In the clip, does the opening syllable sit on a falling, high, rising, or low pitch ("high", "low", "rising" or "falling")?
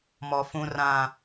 low